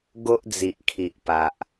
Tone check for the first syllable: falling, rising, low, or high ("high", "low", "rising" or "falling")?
high